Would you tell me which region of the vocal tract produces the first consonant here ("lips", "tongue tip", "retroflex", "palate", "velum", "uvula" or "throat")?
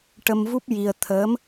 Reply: retroflex